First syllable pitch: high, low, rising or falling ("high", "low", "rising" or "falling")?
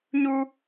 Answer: high